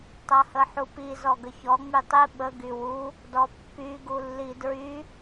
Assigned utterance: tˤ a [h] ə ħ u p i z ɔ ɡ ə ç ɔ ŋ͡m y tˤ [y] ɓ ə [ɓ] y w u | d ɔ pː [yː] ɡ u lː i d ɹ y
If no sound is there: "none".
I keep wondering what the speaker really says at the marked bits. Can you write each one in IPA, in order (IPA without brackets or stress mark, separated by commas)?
h, i, ɡ, y